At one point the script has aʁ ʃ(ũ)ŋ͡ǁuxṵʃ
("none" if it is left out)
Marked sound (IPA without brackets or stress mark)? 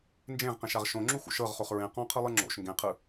õ